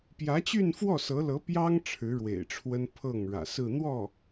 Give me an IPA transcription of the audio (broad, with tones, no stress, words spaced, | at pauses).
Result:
pjä˧˥t͡ɕy˥˧nfwɔ˥˩sɤ˧˥ lɤ˧˥pjɑ˥ŋ ʈ͡ʂʰɻ̩˧˥ɻwḛ˨˩ɪ̯ʈ͡ʂʰwə˥n pʰɤ˥˩ŋɻä̰˨˩sɹ̩˥˧ n̪wɔ˥˩